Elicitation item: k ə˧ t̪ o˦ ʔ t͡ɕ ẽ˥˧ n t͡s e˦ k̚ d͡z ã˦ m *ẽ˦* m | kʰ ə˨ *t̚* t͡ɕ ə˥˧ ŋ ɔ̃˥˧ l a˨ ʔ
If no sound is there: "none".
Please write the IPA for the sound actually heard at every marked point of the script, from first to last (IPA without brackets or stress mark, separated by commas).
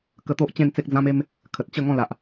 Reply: e˦, t̚